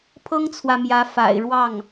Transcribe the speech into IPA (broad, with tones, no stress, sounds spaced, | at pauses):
pʰ ɤ˥ ŋ t͡sʰ w ä˨ m j ä˧˥ f a̰˨˩ ɪ̯ ɻ w ɑ˥˩ ŋ